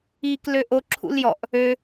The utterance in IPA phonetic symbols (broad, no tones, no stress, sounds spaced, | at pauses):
iː k l ø ʔ o ǁʰ ṵ l j ɔ ʔ | ø